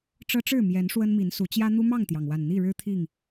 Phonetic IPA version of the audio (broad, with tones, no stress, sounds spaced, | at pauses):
ʈ͡ʂ ɤ˦ ʈ͡ʂ ɻ̩˥˨ m j ɛ˨˦ n ʂ w ə˦ n m i˨˦ n s u˨˦ t͡ɕ j ä˦ n̪ u˦ m ɑ˥˨ ŋ t̪ j ɑ˩ ŋ w a˨˩ n n̪ i˥˨ ɻ ɻ̩˦ t̪ʰ i˥˨ ŋ